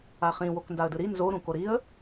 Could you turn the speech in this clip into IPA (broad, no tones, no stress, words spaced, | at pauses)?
aχĩ wokndaə̯dɯɾi nzo ɾũkoɾiə̯